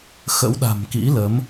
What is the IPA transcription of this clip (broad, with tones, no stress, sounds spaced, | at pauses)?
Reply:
x ə̰˧˥ w ɗ a̤˨˩ m k ḭ˧˥ l ə˨˦ m